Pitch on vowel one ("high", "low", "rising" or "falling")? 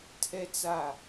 high